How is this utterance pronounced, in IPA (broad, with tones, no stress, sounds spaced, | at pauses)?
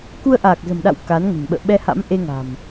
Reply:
k u˧ ə̯ ʔ aː˨˩ k̚ z ə̤˨˩ m ɗ a̰˧˨ w k a˨˦ n ŋ ə̤˨˩ n ɓ ə̰ː˧˨ ɓ ɛ˧ h a̰˧˥ m ʔ e˧ ŋ a̤˨˩ m